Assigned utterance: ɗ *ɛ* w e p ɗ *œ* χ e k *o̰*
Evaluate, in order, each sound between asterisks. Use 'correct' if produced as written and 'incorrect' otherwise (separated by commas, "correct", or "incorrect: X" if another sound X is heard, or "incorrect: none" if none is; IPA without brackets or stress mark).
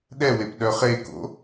correct, correct, correct